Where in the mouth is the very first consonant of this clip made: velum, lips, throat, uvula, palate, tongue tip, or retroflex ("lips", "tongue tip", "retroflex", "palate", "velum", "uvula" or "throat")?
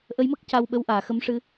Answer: throat